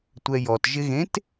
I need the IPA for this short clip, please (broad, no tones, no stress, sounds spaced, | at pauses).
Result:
tʷ ɛ j ɔ t ʒ ɪ ɣ ẽ t